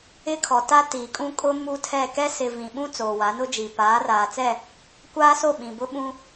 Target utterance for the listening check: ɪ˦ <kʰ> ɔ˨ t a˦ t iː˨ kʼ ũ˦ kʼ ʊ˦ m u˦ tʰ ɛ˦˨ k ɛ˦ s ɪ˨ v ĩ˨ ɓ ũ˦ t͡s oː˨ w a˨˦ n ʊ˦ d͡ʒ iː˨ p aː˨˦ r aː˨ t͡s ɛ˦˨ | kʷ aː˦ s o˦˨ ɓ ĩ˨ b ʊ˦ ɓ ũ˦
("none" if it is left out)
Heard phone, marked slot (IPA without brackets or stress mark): kʰ